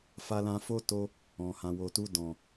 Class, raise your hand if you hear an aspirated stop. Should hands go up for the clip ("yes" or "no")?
no